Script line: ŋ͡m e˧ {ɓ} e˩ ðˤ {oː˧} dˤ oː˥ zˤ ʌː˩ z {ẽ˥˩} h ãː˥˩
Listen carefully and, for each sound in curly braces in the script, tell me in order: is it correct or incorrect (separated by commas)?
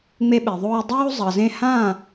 correct, correct, correct